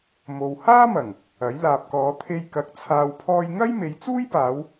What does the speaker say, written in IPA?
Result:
m o˨ w h aː˥ m ɐ˨˩ ŋ | ɐ˨˥ j l aː˨ p̚ k ɔː˨˧ t̪ʰ e˧ j k ɐ˨˥ k̚ t͡sʰ aː˨ w pʰ ɔː˧ j ŋ ɐ˥ j m e˨˧ j t͡s uː˥ j p aː˨˧ w

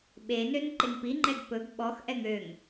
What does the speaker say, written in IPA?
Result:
ɓ e n ø n ǃ e ŋ p i ŋ͡ǃ ɛ ɡ p ɵ ɡ ɓ ɔ x ʔ ɛ ŋ ø ŋ

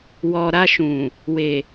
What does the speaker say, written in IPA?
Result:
w ɔ˨ ɾ a˧ ʃ ũ˨ | w e˨

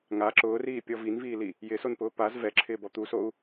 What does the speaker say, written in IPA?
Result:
ŋ a ǁ ʊː r iː pʲ ɔ v i n v iː l i | j ɪ s o n p ʊː p a z v ɛ ǁʰ ɪː b ɔ t̪ u s o u̯

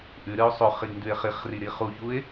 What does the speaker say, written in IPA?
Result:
ʔ ʉ ɾ ɨ ʊ̯ sˤ ɵ χ i ɡ n d ʉ ɪ̯ χ i χ r i ɾ i χ u ç u ɪ̯

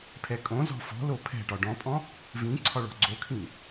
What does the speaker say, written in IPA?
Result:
pʰ ɛ kʼ õ z ɔ̤ f ɔ̤ l o pʰ ɛ̤ ʈ ɒ ɖ ɔ̃ pʼ ɔ̃ | v ĩ ǀʰ ɒ ɭ ɔ̤ ɡ͡ǀ o kʰ ĩ

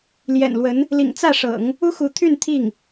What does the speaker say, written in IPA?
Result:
l j ɛ̰˨˩ n l w ə˧˥ n | l ḭ˨˩ ŋ t͡s ä˥˩ ʂ ɤ̰˨˩˦ ŋ | u˥ x u˧˥ t̪ʰ y˥˧ n t̪ʰ i˥˩ ŋ

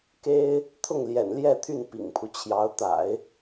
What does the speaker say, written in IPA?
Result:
k e˥ ɪ̯ | t̪ʰ ʊ˥˩ ŋ l j ɛ̰˨˩ n l j ɛ˥˧ t̪ʰ y˥˩ n p ḭ˨˩ ŋ pʰ u˦ t͡ɕʰ j ɑ˧˥ ʊ̯ t̪ a̰˨˩˦ ɪ̯

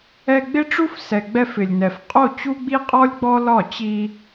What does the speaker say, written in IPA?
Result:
ɛ˧ ɡ͡b ɪ˦ ʈ͡ʂ u˦ f s ɛ˨ ɡ͡b ɛ˧ f ɪ˨ lʲ n ɛ˨ f qʼ o˦˨ t͡ɕ u˦ ɡ͡b i˦ qʼ ɔ˦ lʲ ɡ͡b ɔ˦ l ɒ˦˨ t͡ɕ i˧

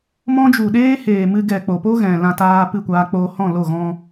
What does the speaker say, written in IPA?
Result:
m ɔ̃˦ d͡ʒ u˨ ɗ eː˦ h eː˨ m ɨ˧ ɡ ɛ˨ k͡p o˨ p o˦ ɣ ɛ̃˨ l ã˧ t aː˧ p ɨ˦˨ kʷ aː˧ k͡p oː˧ h ɔ̃˦˨ l o˦˨ ɣ ɔ̃˧

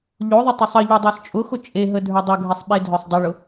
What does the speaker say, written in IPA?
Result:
ʎ o ðˤ ə tˤ ʊ sˤ ə ʎ ʉ dˤ ə˞ s t͡ʃʼ ʊ x ʊ t͡ʃʼ e ɦ ə dʱ ə˞ dˤ ʊ ɡʱ e sˤ ɓ e dʱ œ sˤ dˤ ʊ ɭ ʊ

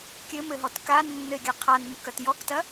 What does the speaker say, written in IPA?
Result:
kʲ ɘ m ɘ ɦ ɔ t k a nː ɘ e̯ ɡʲ a qʰ a n m o k ɐ t j ɔ k t ɐ

